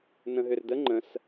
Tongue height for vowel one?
mid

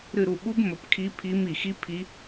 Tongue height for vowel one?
high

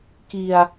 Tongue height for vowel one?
high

